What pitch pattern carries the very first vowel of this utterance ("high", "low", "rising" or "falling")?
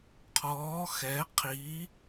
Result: rising